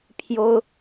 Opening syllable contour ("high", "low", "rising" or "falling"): high